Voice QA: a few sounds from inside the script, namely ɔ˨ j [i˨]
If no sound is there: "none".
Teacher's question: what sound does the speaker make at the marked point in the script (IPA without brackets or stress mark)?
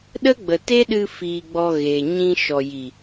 i˨